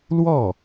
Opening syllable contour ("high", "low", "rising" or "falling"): falling